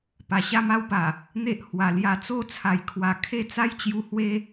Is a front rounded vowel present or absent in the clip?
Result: absent